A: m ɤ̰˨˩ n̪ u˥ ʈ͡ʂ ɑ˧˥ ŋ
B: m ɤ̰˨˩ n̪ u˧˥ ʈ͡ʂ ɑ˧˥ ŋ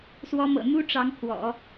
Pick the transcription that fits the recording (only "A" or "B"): A